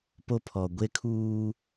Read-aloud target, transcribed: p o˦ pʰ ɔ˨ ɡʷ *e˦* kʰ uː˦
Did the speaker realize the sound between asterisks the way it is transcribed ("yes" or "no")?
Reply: yes